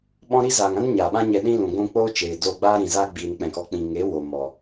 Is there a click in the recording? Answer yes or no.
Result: no